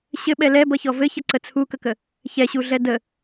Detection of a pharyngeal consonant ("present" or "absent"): absent